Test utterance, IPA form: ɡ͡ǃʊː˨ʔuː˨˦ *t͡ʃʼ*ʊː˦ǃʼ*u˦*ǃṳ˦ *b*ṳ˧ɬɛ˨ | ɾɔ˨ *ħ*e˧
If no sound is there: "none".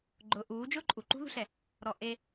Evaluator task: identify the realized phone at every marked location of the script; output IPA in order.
d͡ʒ, u˨, ð, ʔ

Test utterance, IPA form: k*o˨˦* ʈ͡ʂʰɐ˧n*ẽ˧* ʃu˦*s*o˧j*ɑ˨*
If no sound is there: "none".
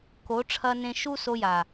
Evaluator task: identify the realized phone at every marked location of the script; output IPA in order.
o˨˦, ẽ˧, s, a˨

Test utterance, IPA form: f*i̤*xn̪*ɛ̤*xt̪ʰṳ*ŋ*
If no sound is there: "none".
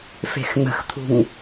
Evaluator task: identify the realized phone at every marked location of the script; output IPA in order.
e̤, ə̤, ŋ

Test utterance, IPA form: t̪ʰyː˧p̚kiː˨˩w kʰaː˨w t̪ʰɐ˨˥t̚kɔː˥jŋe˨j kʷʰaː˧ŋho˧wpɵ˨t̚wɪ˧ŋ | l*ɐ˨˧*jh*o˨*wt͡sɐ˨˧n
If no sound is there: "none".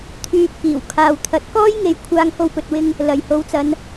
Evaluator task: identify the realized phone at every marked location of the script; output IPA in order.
ɐ˨˩, o˨˧

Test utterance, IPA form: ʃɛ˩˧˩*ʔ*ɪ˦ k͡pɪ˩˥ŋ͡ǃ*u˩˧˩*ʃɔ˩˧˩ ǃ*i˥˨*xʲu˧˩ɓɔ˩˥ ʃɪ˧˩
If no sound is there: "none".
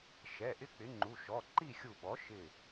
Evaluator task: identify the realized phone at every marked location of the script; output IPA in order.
ʔ, u˩˧˩, i˥˨

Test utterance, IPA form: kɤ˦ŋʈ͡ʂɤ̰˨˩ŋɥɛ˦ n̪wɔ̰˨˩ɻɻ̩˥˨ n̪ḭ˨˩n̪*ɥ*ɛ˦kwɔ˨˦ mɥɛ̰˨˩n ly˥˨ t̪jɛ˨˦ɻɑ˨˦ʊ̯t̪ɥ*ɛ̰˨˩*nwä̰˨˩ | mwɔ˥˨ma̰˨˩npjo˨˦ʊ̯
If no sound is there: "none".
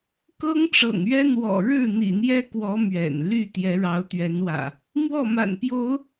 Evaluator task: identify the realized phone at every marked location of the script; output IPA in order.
j, ɛ˨˦

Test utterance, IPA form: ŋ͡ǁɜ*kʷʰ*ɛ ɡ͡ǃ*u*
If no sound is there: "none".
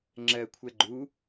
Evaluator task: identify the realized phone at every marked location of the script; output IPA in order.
kʷʰ, u

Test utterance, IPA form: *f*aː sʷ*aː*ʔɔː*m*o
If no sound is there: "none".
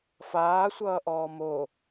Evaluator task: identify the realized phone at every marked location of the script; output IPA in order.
f, ʌː, m

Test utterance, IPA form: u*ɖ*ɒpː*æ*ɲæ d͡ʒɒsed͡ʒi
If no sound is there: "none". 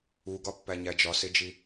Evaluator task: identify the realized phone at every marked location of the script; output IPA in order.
ɡ, æ

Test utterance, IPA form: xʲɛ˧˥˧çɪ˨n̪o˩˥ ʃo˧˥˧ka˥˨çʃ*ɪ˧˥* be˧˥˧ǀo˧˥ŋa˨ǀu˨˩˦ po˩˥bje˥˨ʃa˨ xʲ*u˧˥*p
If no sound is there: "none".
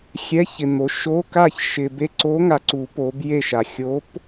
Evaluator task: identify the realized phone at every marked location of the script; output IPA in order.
ɪ˨, o˧˥

